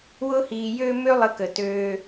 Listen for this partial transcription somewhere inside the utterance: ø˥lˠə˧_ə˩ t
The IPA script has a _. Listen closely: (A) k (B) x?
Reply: A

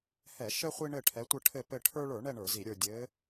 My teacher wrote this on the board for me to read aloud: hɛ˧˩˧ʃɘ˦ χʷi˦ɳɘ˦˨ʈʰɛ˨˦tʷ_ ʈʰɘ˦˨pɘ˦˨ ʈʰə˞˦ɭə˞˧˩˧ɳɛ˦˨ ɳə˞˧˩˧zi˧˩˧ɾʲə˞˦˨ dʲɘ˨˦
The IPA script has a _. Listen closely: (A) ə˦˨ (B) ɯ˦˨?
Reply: A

